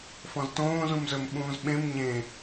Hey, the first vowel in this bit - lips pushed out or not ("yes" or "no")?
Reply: yes